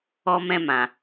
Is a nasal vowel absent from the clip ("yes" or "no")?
no